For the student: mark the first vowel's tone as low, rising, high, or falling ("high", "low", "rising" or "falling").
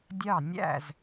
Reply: falling